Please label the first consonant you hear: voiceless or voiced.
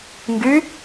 voiced